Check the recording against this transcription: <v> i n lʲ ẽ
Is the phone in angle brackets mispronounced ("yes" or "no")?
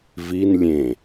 no